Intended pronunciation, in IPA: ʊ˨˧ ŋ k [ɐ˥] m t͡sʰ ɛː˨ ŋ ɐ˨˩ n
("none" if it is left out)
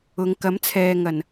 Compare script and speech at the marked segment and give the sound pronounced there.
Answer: ɐ˨˥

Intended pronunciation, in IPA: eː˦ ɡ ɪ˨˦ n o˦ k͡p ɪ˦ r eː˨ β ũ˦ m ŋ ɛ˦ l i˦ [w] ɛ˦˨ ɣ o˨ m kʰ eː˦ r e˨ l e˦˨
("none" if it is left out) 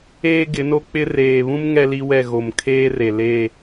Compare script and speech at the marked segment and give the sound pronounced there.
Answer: w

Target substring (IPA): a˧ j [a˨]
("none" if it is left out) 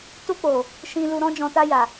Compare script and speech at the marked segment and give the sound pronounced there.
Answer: a˨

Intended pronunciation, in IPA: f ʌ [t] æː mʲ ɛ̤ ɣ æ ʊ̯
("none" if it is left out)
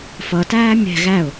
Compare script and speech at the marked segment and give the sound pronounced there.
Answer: t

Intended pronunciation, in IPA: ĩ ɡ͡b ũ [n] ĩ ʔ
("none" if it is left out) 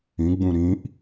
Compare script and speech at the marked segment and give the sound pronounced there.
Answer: ɾ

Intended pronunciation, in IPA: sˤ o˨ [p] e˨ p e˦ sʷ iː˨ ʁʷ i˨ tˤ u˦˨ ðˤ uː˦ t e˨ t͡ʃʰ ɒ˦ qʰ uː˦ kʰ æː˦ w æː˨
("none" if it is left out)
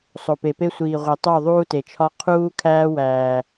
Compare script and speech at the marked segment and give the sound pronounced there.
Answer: p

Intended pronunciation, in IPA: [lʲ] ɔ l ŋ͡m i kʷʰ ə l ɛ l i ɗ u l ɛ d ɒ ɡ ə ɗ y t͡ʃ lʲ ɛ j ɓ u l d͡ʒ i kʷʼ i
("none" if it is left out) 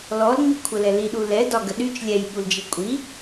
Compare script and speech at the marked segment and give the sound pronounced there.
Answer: l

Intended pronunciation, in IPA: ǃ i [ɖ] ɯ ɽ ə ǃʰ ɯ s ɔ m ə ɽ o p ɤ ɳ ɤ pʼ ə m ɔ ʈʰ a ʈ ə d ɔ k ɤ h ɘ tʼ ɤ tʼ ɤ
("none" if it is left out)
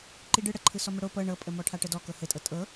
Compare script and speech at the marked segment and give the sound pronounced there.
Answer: ɖ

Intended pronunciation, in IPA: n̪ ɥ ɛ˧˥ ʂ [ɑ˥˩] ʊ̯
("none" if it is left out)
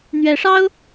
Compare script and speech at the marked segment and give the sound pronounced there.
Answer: ɑ˥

